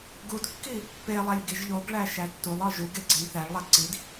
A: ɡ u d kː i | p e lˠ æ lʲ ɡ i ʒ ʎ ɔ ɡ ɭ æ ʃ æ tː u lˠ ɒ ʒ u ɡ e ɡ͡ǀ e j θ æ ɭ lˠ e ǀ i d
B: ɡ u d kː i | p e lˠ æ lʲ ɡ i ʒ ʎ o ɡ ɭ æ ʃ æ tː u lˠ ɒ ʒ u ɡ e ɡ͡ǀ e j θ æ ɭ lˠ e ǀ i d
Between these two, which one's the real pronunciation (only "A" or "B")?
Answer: B